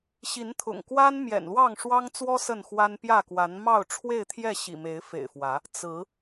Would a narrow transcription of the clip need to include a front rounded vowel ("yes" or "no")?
no